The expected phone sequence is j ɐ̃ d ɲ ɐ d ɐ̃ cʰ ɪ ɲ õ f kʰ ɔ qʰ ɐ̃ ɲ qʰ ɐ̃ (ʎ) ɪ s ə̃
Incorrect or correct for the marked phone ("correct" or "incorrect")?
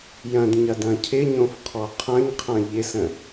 correct